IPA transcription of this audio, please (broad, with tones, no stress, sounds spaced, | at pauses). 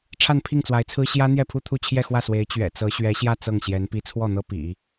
ʈ͡ʂʰ a˥˧ n pʰ i˥˩ ŋ t͡s w a˧˥ ɪ̯ t͡sʰ ɹ̩˥ ɕ j ä˥ n̪ j ɛ˥˧ pʰ u˥˧ t̪ʰ u˥˧ t͡ɕʰ j ɛ˥˧ x w ä˥˩ s w e˧˥ ɪ̯ t͡ɕ ɥ ɛ̰˨˩ t͡s ɤ˧˥ ɕ ɥ ɛ˧˥ ɕ j ä˥˧ t͡s ɤ˥˩ ŋ ɕ j ɛ˧˥ n p i˧˥ t͡sʰ w ɔ˥˩ n̪ ɤ˥ p ḭ˨˩˦